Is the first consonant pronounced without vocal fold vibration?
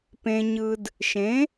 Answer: yes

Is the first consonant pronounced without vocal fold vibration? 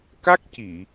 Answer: yes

